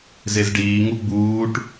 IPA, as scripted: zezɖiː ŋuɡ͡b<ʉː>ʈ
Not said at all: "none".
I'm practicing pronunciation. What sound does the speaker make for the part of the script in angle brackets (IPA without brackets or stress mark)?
uː